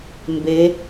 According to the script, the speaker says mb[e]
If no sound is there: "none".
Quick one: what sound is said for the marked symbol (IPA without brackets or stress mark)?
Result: e